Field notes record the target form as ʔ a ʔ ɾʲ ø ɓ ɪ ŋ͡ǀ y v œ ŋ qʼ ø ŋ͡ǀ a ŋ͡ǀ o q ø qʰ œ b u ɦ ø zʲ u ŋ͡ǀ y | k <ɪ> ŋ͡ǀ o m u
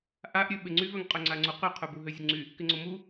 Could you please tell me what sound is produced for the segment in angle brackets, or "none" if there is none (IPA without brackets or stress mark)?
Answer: ɪ